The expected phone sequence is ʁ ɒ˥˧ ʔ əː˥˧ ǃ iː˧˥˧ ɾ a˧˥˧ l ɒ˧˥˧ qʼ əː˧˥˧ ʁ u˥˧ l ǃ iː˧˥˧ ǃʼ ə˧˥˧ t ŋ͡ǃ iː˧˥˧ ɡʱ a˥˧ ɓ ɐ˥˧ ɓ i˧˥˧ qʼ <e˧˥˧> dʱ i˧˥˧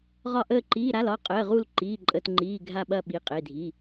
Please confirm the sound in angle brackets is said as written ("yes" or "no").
yes